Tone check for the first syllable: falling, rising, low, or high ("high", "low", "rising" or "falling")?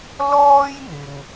high